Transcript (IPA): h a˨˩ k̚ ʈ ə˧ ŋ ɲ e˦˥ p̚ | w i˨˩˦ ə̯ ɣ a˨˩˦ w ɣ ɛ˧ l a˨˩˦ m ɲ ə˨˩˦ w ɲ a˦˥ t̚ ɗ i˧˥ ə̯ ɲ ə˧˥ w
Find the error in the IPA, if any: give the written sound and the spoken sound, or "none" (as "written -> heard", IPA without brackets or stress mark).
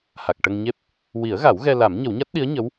none